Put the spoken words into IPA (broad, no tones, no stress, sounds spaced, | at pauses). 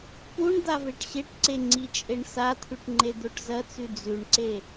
p u ɳ d̪ a v e ʈ ɕ e ʈ ǀ e ŋ͡ǀ i t͡ʃʼ e ɳ s a t̪ʰ ʉ ʈ ŋ͡ǃ e d̪ o ʈ z ɐ t͡s ʉ d͡z ʉ ɳ ǀ e